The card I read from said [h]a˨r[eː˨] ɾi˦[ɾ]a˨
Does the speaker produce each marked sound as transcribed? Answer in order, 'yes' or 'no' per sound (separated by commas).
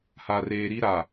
yes, yes, yes